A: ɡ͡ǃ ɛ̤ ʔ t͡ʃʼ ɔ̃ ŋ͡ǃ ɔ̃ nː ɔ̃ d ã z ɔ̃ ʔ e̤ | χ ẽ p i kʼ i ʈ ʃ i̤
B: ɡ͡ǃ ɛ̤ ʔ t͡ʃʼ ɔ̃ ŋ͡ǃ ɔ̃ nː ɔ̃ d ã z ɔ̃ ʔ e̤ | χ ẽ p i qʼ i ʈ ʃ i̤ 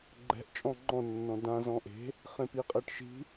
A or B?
B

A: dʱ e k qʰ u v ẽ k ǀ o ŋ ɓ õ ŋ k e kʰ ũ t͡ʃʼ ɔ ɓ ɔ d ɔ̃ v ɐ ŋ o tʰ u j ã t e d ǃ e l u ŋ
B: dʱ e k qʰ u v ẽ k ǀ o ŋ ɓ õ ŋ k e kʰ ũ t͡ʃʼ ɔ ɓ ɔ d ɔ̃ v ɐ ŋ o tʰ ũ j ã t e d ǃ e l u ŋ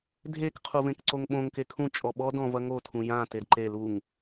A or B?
B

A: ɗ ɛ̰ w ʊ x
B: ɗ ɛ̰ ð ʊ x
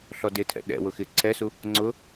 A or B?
A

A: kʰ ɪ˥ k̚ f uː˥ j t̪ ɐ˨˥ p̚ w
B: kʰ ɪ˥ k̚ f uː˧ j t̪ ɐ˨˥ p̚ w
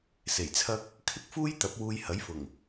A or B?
A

